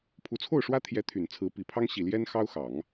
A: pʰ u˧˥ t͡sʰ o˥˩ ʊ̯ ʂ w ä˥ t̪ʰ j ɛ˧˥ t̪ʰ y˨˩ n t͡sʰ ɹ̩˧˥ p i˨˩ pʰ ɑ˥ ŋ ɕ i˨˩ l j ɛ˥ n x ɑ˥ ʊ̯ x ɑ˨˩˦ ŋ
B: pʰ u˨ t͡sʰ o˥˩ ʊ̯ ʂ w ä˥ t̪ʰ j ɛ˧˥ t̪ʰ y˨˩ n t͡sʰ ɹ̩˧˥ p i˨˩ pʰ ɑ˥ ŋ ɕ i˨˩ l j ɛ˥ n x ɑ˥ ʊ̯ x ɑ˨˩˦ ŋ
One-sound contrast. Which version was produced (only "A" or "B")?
A